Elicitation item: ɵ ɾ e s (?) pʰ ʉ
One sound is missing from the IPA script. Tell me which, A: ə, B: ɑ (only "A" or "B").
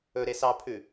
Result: B